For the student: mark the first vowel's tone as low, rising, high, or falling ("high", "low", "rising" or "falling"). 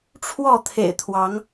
falling